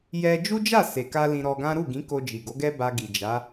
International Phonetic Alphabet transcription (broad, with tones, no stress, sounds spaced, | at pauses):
j ɛ˧ d͡ʒ u˦ d͡ʒ a˦˨ s e˨ k a˧ l ĩ˧ ɾ ɔ˧ ɡ ã˦ ɾ u˦˨ ɡ ĩ˨˦ k o˧ d͡ʒ i˨ ɡ o˨˦ ɡ ɛ˦ b a˧ ɡ i˨ d͡ʒ a˨˦